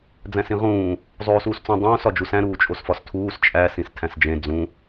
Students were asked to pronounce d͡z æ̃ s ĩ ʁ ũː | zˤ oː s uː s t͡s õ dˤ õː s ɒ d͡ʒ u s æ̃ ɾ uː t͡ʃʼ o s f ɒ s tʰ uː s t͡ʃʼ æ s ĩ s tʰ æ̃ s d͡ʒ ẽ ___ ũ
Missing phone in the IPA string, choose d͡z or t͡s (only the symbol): d͡z